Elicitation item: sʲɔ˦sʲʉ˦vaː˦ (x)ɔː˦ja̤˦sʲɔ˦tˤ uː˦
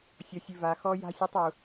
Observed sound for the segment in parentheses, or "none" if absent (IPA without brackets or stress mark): x